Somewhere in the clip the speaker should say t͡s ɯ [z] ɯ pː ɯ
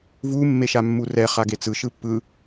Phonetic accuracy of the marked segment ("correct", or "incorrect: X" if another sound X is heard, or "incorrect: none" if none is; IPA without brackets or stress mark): incorrect: ʃ